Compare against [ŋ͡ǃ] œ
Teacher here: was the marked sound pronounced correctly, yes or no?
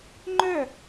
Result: yes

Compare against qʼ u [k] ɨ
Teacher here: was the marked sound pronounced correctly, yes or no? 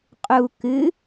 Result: yes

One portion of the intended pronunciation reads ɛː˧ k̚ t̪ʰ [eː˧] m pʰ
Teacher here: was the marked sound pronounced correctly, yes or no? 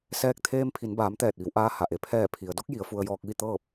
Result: yes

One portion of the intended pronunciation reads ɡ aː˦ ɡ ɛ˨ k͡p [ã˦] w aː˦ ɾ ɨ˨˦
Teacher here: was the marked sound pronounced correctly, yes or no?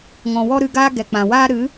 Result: no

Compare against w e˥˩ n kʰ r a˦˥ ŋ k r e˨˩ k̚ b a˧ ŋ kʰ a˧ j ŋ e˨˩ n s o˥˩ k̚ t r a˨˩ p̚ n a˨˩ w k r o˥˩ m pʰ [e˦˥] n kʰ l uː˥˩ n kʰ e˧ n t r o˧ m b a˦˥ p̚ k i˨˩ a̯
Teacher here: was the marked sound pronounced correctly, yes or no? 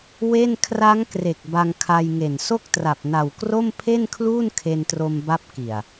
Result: no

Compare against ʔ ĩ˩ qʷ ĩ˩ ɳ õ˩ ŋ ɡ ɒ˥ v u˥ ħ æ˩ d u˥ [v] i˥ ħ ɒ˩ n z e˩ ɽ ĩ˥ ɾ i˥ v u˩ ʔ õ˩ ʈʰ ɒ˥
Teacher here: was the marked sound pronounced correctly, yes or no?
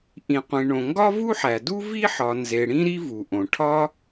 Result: yes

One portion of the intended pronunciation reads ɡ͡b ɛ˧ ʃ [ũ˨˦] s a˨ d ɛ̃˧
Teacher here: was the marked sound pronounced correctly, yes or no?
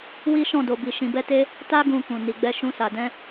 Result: no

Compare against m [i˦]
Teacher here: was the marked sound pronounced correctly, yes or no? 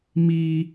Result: no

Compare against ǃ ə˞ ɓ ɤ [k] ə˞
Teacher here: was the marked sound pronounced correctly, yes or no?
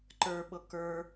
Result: yes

